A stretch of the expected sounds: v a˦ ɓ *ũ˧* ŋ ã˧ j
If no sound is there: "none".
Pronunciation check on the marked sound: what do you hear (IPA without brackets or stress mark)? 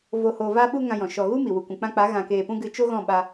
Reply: u˧